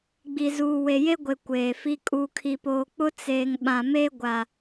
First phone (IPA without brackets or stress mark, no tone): ɡ͡b